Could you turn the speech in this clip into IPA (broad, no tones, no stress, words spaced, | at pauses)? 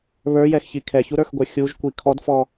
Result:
βə˞jɛxçi kʰɛçuɾə˞xɡʷə˞ xʲuʒkʷi kʰɔdfɔ